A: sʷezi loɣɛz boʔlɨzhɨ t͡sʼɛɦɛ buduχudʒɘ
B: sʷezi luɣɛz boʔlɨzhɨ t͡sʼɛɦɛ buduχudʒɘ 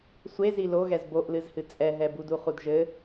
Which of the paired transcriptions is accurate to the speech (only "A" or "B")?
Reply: A